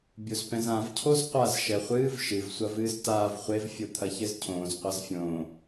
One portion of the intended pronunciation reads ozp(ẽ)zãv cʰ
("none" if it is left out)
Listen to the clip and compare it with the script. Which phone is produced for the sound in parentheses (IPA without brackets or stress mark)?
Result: ɛ̃